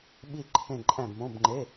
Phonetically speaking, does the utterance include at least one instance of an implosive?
yes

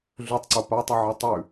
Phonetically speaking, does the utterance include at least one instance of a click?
yes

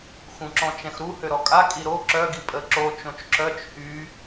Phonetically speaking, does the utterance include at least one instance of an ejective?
yes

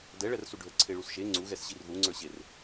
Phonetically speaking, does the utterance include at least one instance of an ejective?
no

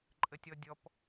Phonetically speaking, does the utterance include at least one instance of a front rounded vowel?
no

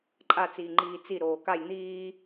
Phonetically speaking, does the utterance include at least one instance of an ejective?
yes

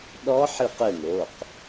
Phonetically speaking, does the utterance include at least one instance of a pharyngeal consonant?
yes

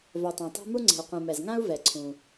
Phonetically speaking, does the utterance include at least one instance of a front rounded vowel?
yes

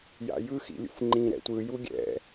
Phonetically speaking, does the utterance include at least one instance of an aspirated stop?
no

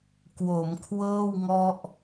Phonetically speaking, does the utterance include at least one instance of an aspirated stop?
yes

